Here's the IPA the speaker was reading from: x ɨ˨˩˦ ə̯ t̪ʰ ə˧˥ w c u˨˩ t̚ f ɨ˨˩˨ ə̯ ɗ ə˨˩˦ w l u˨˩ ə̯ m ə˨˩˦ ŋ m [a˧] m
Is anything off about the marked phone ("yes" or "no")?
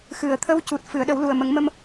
yes